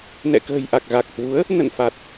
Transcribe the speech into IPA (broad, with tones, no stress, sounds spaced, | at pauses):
n ɛ̰˧˨ k ə̤ː˨˩ j ʔ a˨˩ k̚ ɣ a˨˩ k̚ h w u˨˦ ə̯ | n ə̰˧˨ n f a˨˩ t̚